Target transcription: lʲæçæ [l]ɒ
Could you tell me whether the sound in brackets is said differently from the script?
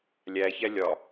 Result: yes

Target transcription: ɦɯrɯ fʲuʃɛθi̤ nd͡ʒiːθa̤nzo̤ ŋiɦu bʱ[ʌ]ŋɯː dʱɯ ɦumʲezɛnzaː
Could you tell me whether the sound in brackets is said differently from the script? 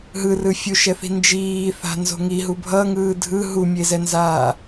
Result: no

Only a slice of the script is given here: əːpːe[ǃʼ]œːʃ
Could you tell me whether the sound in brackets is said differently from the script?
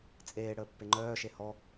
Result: yes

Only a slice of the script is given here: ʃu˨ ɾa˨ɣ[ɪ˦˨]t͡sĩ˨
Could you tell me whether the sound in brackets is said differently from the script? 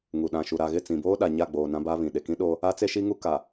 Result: no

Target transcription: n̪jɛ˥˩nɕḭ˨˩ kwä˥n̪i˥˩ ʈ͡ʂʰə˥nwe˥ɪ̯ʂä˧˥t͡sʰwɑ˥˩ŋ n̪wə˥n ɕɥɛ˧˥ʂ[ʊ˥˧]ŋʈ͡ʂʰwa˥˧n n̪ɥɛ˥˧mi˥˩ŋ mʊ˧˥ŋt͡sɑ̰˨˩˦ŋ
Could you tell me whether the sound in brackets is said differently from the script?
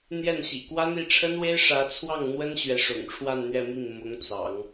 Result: yes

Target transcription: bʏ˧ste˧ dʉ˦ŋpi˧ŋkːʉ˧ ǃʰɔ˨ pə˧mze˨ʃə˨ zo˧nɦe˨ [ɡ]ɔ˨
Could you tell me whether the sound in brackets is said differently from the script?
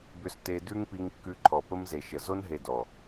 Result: yes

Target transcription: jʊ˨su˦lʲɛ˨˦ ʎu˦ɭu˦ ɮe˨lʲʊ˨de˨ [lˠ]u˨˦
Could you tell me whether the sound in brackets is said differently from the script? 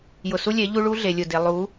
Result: no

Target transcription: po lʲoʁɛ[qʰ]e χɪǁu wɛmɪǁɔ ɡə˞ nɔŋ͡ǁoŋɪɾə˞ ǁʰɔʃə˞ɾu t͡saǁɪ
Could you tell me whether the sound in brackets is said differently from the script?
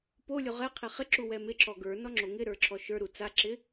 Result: no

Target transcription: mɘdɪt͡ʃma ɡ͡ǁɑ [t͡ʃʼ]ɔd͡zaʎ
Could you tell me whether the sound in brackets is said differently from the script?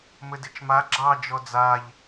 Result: yes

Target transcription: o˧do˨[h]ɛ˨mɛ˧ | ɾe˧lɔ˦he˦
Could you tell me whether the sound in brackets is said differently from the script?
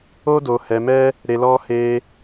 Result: no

